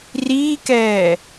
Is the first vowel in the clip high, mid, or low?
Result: high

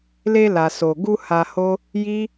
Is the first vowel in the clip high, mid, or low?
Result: mid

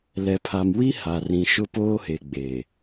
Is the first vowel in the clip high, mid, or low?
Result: mid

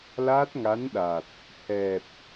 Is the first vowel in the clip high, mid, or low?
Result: low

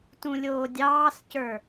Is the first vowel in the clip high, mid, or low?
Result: high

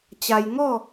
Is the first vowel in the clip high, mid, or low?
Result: low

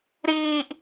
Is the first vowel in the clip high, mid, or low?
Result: high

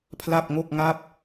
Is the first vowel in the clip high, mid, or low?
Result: low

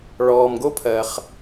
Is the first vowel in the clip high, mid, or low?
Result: mid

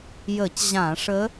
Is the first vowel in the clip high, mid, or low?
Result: mid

